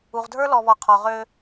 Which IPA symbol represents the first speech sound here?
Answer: u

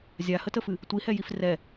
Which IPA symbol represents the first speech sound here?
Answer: zʲ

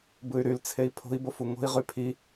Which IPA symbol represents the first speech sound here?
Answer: b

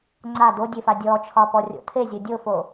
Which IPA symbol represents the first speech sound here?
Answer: ŋ͡ǀ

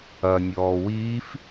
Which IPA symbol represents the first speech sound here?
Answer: ɐ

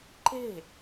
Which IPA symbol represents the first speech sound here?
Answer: ǃ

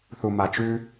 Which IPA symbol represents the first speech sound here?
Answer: θ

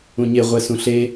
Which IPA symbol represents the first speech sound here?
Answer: ũ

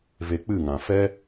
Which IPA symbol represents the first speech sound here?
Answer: v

